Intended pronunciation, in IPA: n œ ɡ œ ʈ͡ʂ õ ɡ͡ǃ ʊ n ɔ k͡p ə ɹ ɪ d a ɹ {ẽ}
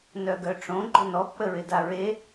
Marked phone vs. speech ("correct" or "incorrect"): incorrect